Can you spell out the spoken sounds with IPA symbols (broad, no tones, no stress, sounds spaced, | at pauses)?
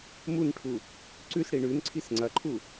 m u n ʈʰ u | ǀ ʉ s ɽ i ɳ ʉ n ǀʰ i s ŋ͡ǀ ɐ ǃʰ u